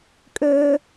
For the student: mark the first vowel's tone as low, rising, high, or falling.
high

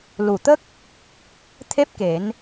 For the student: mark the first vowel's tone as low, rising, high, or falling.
low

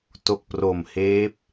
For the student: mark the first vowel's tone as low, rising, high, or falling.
low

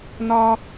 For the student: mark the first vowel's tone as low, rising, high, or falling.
high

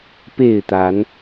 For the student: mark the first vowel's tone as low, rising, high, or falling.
falling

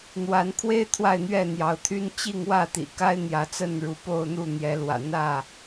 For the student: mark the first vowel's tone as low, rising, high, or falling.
rising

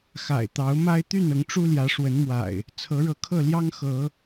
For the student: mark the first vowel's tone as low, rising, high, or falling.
low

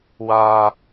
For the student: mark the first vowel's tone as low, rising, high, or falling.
low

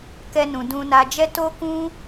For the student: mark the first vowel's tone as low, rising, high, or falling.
high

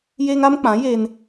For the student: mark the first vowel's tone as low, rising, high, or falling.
high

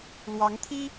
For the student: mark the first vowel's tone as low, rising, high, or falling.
rising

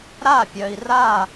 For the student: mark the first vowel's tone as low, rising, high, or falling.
falling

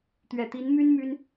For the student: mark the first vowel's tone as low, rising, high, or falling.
low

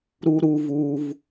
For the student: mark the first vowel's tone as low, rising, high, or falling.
low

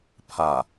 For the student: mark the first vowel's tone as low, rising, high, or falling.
low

